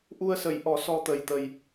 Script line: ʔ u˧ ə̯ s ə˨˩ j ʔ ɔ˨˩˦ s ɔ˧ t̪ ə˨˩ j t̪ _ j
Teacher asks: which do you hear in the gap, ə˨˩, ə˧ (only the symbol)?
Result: ə˨˩